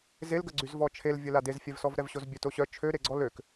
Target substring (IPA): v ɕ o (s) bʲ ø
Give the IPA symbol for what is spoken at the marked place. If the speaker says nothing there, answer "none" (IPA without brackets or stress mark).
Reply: z